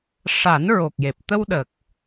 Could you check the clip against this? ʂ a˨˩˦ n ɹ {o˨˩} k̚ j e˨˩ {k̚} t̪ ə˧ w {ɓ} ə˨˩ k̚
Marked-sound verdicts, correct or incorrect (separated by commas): correct, incorrect, incorrect